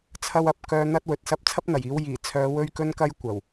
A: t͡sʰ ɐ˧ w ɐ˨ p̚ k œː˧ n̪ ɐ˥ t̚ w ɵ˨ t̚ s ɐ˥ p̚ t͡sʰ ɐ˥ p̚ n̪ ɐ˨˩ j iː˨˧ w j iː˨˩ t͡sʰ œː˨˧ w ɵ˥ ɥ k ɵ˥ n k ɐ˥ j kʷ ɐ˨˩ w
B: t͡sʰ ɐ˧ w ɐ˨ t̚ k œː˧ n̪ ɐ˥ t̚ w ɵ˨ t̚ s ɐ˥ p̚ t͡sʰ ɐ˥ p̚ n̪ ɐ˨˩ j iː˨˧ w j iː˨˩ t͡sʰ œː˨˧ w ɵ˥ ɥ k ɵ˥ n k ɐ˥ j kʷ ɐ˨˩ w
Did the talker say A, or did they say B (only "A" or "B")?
A